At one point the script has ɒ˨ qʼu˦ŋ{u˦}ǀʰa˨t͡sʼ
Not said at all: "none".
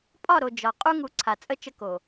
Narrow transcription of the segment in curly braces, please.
u˨˦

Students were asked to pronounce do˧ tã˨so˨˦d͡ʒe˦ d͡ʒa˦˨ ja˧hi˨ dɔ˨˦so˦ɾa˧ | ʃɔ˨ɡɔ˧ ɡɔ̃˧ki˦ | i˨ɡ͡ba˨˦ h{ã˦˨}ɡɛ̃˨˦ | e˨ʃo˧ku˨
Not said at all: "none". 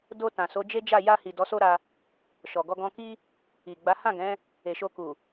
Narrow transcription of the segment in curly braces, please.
ã˦˨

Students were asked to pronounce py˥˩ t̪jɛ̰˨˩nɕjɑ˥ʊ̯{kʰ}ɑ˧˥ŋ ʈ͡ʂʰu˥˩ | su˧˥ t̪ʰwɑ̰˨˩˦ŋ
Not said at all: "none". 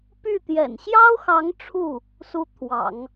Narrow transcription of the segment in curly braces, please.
x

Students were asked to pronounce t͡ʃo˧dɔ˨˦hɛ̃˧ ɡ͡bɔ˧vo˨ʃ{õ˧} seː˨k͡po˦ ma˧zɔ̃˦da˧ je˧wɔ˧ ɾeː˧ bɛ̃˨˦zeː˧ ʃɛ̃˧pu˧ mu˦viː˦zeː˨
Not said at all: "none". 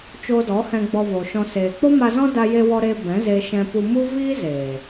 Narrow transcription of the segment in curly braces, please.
ɔ̃˧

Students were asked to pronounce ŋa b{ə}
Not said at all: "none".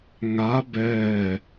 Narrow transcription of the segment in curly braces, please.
ɛ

